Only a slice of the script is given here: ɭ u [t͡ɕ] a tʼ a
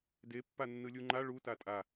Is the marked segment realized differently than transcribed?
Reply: yes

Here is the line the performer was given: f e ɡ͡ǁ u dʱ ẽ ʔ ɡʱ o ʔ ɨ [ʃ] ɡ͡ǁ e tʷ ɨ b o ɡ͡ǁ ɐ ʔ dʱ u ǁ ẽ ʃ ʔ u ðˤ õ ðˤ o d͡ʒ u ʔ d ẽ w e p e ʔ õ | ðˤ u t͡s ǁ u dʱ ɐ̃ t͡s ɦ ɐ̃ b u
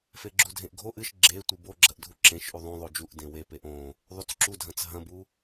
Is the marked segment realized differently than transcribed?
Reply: no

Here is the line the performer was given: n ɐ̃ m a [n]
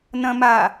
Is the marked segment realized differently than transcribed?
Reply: yes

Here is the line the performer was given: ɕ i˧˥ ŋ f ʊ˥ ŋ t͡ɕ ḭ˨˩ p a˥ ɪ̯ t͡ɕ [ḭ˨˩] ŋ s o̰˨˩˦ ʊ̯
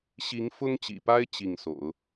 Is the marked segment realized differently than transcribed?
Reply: yes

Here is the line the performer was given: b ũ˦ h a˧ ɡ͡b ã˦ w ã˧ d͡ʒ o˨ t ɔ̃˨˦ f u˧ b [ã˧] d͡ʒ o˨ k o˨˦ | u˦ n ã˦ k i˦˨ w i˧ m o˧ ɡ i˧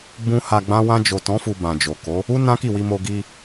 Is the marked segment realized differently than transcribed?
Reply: yes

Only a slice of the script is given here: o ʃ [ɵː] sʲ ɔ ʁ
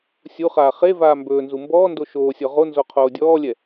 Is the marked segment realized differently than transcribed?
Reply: yes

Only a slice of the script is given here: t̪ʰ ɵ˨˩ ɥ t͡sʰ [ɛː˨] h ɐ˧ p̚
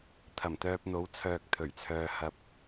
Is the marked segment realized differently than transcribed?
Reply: yes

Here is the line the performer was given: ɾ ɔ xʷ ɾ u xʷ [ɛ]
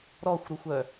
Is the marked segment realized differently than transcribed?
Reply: yes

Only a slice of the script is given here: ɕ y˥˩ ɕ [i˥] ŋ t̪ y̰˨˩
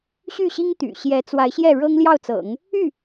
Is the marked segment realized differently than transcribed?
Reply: no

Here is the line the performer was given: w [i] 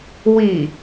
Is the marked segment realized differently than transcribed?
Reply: no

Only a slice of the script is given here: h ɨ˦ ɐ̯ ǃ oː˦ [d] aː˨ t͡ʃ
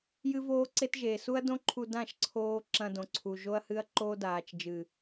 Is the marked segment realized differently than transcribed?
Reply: no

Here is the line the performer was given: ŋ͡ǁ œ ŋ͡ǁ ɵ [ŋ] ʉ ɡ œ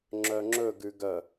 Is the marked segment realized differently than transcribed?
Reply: yes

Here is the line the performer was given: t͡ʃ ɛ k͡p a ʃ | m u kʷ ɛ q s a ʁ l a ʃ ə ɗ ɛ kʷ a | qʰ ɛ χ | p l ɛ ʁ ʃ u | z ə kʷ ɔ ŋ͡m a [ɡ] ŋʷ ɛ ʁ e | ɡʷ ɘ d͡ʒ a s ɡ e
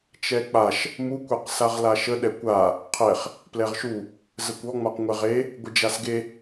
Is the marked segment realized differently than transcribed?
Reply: yes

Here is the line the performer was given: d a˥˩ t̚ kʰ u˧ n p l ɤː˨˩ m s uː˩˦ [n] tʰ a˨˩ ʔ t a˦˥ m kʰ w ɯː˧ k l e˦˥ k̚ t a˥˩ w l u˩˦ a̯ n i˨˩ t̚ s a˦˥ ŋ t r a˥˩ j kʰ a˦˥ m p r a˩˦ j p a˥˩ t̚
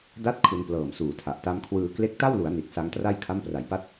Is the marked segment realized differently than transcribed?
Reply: yes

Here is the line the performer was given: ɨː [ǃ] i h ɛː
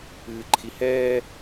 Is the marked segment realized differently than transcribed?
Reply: yes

